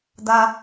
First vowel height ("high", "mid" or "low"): low